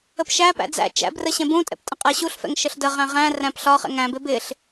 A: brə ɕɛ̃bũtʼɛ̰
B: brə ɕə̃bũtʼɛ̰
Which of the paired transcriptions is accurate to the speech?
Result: A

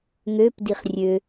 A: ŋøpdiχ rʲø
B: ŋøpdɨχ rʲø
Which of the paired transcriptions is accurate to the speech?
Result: A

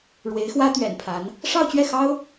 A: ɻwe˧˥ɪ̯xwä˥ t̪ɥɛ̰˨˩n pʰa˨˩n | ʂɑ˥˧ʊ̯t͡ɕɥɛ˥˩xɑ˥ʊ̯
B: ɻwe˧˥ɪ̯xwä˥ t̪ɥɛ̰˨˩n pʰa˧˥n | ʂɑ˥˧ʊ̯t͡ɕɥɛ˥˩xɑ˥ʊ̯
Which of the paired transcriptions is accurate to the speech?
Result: B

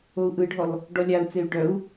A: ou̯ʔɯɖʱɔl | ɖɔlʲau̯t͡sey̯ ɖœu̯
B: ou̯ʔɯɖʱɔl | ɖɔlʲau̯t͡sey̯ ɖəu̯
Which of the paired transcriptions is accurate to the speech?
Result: A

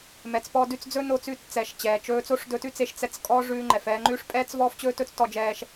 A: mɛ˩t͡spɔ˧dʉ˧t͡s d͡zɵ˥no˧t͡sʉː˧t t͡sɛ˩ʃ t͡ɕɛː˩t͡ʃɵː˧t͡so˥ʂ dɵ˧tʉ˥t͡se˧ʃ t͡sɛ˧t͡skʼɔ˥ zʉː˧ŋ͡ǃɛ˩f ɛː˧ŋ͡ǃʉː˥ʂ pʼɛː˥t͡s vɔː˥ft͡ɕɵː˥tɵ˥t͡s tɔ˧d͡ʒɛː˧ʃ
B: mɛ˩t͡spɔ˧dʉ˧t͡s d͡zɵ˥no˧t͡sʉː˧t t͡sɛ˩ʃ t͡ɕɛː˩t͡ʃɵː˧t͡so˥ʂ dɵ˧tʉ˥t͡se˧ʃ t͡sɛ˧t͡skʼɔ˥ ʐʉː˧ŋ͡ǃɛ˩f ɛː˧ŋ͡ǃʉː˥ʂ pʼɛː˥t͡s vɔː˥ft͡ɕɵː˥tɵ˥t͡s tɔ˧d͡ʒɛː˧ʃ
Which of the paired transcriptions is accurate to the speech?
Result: B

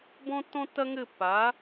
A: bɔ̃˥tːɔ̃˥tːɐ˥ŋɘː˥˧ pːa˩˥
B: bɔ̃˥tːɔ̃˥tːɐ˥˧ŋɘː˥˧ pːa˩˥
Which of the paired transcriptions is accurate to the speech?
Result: A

